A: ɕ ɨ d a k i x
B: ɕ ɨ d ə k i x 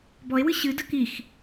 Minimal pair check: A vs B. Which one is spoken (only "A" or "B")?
B